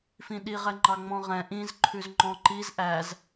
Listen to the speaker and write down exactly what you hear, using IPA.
f ĩ ɗ i ʁ ɛ ŋ͡ǃ ɑ ŋ͡m ɔ̃ ʁ ɛ̃ ʔ ĩ z ǃʰ ʉ z ŋ͡ǃ ɔ̃ ǃ i z ʔ æ z

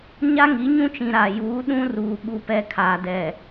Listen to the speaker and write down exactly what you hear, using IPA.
ɲ a˦ ŋ i˨˦ ɲ ũ˦ t͡ʃ ĩ˨ ɾ a˨ j uː˨˦ ɗ ũ˦ r uː˨ ɓ u˦ p ɛ˦ kʰ aː˨ d ɛ˨

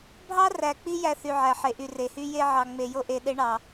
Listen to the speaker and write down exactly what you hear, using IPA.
bʱ ɑ˥ r æ˨ k͡p i˦ j æ˥ θ y˨ ʕ æ˩ ħ e˨ ʔ y˨ r e˩ h y˥ j e˦ ʕ ɑ˨ ŋ͡m e˨ j o˦ ʔ e˨ ɗ e˦ ɳ ɑ˩

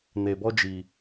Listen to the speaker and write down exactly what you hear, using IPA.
n e˨ b ɔ˦ d͡ʒ i˨

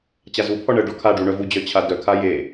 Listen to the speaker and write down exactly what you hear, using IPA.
t͡ɕ a z u pʰ ɔ ɳ ə ɖ ɔ kʰ a ɖ u ɳ œ v u d͡ʑ œ t͡ɕʰ a d œ kʰ a j e

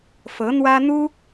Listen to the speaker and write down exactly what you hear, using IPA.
f ɤ˧˥ n̪ w ä˥ n̪ u˥

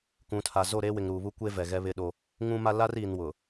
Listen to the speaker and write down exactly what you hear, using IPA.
k ũ˨ tʰ a˨ z o˦˨ ɾ eː˦ w ɪ˨ ŋ ɾ uː˨ β u˦ kʷ e˦ v ɛ˨ ɣ ɛ˦ β ɪ˦ ɗ o˦ | ŋ ũ˦ m a˦ l a˦ r iː˨ n w ʊ˨

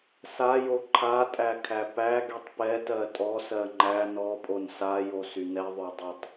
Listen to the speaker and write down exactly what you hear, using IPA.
s a j o ǃʰ a tʼ æ kʰ æ p æ ɡ y tˤ p ɛ t ɜ tʼ ɔ s ɜ ŋ͡ǃ æ n ɔ pʼ o n s a j o s y n ɛ ðˤ ø dˤ ɛ tˤ

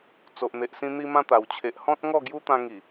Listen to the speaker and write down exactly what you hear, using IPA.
t͡s o˨ ʔ n̪ e˨ ʔ s ĩ˧ n̪ i˧ m ã˧ t̪ a˨˩ w t͡ɕʰ e˨ ʔ h ɔ̃˦ t̚ ŋ ɔ˥˧ ɡ j u˦ t̪ ã˧ ŋ i˨˩

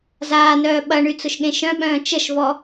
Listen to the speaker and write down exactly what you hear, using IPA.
z aː n œː ɓ ɐ ɳ y t͡s ʊ ʃ ɠ ẽ ʃ œ̃ ɓ œ̃ː t͡ʃ ə ʃ v ɔ

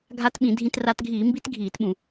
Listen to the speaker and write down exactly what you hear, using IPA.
ɡʱ a˧ t ɓ ĩ˧˩˧ dʱ ĩ˧ t r a˧ t ɡʱ iː˧˩˧ m b i˦˥ t ɡʱ iː˧˩˧ t ɓ ũ˧˩˧

